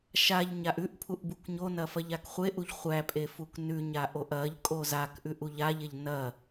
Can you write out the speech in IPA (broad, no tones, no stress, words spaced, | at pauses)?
ʃaʎ ɲaʔʉʔpʰuʔ bukɲonɐ fɐʎakχʷeʔuʎ χʷæpʼe fuknʉɲa ʔoʔɐʎkʼo zakʔʉʔ uʎaʎeʎ nɐ